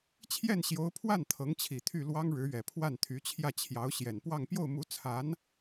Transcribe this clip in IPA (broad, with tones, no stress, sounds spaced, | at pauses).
t͡ɕʰ j ɛ˥˩ n ɕ j o˧˥ ʊ̯ pʰ w a˥˩ n t̪ʰ ɤ˧˥ ŋ t͡ɕʰ i˨˩ t̪ʰ y˥˩ l w ɑ˥ ŋ ɻ ɻ̩˧˥ ɥ ɛ˨˩ pʰ w a˥˩ n t̪ʰ y˧˥ t͡ɕʰ j ä˥˩ t͡ɕʰ j ɑ˧˥ ʊ̯ ɕ j ɛ˨˩ n p w ɑ˥˧ ŋ p j o˥˩ ʊ̯ m u˧˥ t͡sʰ a˧˥ n